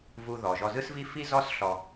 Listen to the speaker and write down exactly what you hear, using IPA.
vu˧ðɔ˩ ʒɔ˧zɯ˥svi˥ fi˥zɔ˥s ɬɔ˧

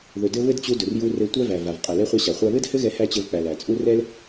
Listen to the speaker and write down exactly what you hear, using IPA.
ðɵ˩dɘ˧ βɘ˥dt͡ɕu˧dɵ˩r ju˧rɘ˧ tʷæ˥væ˩va˩v qʼɛ˩lɛ˧χʷa˧ɕa˩ χʷa˧βɘ˥dhɘ˥ɣɛ˧ hæ˥t͡ɕɘ˧vk͡pæ˩l æ˩t͡sʼu˥ rɛ˥l

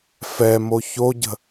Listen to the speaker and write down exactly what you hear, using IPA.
fɛmo çoɟə̤

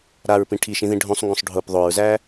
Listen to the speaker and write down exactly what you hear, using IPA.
ɾaɹpĩ ʈʰiʃĩðĩ ɖʱõsˤŋɡõsˤ ɖʱʊp ðˤoɹzæ

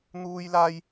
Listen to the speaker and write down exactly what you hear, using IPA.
n̪uː˥jlaː˥j

